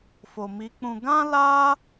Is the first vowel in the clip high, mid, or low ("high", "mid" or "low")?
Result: mid